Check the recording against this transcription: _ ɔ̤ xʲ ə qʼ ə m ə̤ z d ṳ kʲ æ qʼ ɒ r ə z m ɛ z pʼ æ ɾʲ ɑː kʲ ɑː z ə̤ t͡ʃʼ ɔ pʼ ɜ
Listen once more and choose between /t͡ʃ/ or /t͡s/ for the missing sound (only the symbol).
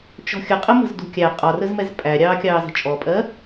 t͡ʃ